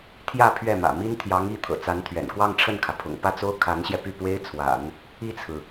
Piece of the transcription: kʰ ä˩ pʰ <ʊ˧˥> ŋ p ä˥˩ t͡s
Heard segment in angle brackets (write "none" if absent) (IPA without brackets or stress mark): ʊ̰˨˩